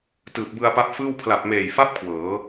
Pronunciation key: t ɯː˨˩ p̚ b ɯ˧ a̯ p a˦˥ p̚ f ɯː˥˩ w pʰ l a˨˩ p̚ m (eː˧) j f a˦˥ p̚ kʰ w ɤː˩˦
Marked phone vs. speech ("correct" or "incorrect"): incorrect